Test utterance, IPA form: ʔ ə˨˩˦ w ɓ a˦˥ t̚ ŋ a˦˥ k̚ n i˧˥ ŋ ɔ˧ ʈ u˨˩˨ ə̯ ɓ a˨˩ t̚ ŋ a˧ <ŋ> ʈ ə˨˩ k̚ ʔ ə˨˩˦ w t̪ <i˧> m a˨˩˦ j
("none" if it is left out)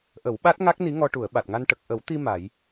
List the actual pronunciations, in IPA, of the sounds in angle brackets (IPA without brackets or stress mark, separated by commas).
n, i˧